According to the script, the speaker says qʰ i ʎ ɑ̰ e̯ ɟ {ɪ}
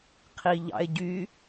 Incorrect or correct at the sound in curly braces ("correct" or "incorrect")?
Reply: incorrect